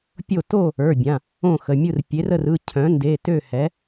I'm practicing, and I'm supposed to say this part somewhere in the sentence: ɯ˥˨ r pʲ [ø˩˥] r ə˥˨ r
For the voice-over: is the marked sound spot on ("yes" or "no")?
no